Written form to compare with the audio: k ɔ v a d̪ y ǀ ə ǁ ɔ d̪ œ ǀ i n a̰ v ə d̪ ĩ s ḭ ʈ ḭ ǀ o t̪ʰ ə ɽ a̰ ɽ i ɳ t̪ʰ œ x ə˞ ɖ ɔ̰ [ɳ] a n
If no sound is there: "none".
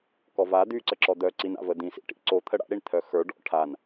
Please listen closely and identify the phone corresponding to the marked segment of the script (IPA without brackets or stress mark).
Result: ʈʰ